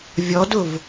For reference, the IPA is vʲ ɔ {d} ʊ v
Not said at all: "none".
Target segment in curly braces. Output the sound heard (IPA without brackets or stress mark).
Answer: d